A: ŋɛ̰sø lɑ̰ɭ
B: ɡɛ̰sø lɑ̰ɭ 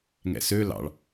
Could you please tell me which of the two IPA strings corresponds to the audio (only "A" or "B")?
A